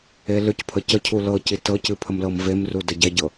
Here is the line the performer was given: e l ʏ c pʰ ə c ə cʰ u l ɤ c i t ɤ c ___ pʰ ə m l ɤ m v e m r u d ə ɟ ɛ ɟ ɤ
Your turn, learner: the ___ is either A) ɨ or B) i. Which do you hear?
A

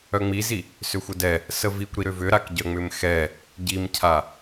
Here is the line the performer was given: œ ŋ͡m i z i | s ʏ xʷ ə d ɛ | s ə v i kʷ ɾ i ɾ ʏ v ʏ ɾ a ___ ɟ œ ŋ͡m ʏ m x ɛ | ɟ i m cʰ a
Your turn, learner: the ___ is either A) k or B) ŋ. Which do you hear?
A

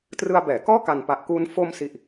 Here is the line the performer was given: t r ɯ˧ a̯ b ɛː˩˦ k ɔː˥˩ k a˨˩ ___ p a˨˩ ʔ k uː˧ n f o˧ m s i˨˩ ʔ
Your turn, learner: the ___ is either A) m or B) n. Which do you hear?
B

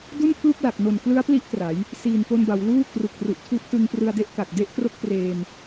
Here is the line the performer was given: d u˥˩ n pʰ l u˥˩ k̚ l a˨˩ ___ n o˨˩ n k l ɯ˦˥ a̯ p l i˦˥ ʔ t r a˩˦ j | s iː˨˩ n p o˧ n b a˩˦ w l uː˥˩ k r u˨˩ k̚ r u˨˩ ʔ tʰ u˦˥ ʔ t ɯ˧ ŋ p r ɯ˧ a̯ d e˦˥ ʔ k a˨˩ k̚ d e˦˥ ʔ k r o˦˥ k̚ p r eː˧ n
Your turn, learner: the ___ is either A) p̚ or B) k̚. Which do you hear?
B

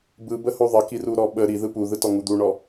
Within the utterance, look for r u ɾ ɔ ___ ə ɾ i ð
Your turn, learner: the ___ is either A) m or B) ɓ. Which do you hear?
B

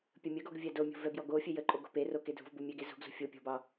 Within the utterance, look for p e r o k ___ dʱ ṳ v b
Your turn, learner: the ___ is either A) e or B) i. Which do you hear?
A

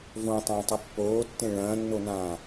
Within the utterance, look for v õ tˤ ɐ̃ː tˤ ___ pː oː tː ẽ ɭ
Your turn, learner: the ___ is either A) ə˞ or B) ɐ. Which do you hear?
B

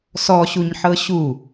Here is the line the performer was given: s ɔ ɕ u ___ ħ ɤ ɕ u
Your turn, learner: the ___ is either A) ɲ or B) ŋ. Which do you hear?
A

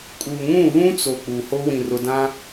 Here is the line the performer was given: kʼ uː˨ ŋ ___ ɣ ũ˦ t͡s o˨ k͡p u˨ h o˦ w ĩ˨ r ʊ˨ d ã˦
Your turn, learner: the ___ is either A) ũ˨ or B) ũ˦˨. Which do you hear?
B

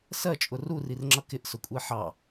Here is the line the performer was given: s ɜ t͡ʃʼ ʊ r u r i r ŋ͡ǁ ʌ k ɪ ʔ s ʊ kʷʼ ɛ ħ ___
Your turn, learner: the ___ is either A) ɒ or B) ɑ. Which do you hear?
B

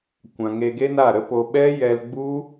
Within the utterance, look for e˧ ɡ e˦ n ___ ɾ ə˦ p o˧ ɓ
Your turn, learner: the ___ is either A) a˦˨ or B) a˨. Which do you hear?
A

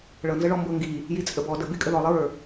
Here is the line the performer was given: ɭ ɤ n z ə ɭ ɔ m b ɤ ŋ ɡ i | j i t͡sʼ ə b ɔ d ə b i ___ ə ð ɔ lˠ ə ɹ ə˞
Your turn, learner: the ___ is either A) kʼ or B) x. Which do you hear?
A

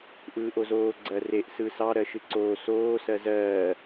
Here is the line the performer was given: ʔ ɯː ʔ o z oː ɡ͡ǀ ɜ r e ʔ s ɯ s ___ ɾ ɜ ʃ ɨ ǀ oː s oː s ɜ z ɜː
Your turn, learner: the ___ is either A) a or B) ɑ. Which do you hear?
B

